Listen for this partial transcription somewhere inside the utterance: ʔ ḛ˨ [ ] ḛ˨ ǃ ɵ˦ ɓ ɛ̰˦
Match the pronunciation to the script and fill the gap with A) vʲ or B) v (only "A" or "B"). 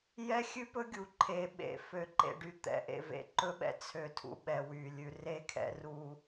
B